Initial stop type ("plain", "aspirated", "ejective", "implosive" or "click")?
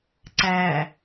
click